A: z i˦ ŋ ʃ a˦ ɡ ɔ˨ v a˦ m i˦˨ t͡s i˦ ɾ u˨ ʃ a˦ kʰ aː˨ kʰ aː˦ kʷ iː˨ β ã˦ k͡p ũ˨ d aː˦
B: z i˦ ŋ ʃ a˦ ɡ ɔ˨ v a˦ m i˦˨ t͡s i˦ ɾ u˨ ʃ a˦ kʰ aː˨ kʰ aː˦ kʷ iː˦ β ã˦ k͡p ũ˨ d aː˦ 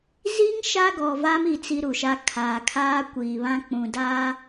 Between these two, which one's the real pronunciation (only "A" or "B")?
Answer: A